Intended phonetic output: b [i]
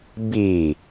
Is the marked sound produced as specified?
yes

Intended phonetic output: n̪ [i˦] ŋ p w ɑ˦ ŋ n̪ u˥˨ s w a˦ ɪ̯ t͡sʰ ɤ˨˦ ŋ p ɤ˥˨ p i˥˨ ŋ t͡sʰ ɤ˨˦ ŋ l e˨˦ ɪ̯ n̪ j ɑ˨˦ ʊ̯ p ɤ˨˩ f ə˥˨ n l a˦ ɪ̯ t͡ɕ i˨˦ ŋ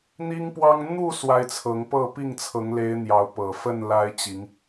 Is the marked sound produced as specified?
yes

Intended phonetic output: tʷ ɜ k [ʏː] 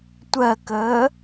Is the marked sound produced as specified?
no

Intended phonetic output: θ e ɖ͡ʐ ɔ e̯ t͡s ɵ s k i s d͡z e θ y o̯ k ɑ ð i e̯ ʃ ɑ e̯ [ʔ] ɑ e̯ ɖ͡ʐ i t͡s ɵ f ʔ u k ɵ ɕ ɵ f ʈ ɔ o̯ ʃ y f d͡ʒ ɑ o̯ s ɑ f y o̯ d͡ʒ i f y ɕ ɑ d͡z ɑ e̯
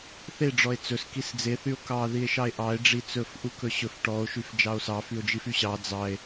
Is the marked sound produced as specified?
yes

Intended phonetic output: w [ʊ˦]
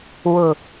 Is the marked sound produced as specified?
no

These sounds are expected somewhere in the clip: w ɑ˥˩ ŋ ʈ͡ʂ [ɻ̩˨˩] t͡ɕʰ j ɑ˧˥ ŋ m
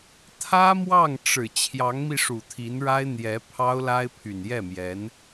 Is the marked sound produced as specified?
yes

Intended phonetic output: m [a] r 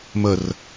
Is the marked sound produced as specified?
no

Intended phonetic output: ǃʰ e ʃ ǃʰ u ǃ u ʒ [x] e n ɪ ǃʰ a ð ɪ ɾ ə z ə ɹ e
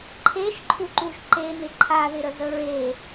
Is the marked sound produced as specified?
no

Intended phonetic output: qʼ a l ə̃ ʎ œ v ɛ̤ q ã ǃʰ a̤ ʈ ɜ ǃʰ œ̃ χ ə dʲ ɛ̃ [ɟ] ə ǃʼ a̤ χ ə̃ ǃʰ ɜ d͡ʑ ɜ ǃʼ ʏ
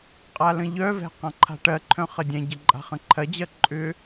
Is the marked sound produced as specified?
yes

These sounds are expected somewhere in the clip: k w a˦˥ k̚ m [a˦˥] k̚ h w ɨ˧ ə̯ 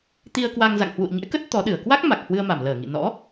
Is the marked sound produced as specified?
no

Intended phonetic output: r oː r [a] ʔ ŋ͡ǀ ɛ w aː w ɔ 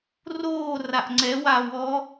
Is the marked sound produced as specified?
yes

